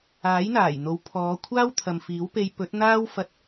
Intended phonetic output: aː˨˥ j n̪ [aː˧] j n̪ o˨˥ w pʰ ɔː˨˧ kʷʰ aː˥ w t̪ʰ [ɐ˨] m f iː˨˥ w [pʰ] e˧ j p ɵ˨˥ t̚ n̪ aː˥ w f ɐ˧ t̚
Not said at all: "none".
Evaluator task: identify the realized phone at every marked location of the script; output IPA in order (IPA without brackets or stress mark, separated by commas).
aː˨˩, ɐ˨, p